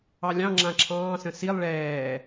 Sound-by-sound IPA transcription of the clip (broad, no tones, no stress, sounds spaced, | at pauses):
ɑ lʲ ɑ̃ ŋ͡ǁ ã ǁʰ ɑ̃ː s ə̃ s i lˠ ɭ ɛː